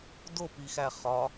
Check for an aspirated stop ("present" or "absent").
absent